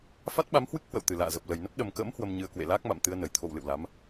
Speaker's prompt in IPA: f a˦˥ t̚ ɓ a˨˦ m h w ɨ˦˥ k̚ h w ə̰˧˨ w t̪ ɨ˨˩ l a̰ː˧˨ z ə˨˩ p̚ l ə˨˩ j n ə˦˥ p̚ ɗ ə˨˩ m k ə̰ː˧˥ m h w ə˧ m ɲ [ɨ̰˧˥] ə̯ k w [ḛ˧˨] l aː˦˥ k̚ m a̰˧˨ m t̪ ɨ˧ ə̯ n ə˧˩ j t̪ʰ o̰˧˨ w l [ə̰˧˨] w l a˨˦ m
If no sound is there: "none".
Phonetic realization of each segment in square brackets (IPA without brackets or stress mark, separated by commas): ɨ˧, ḛ˧˨, ɨ̰˧˨